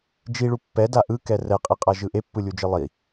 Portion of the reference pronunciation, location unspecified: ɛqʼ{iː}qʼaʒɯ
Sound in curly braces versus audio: incorrect: i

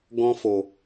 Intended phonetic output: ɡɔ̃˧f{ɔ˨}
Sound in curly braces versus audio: incorrect: o˨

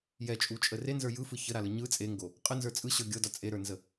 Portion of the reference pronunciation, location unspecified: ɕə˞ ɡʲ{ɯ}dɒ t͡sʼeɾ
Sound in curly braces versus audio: incorrect: ɤ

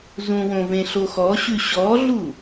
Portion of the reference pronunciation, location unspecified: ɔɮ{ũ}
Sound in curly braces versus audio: incorrect: u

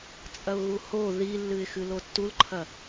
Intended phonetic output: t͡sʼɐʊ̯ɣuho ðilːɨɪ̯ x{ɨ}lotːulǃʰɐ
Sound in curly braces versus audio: correct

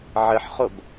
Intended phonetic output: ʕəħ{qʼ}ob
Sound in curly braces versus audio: incorrect: χ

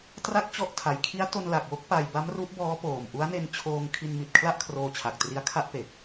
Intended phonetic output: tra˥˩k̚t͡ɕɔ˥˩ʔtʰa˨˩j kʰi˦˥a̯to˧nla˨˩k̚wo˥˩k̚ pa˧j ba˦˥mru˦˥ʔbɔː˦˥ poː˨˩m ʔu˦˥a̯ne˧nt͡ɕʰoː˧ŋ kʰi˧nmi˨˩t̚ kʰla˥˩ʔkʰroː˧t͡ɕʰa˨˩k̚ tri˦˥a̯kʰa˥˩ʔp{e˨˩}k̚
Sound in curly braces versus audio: correct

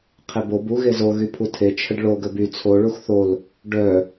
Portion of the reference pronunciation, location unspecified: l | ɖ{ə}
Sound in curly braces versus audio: incorrect: œ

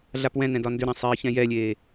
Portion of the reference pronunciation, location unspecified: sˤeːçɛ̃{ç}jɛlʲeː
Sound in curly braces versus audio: incorrect: none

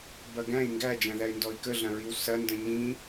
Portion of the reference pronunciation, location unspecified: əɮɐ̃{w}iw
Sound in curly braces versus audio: incorrect: ɹ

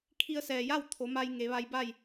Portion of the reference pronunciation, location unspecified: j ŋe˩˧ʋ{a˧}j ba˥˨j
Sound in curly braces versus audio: correct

